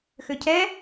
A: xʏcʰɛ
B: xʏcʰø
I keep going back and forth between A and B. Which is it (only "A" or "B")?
A